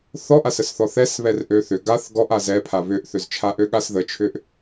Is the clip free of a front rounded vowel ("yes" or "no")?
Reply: no